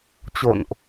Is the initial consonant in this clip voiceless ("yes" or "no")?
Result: yes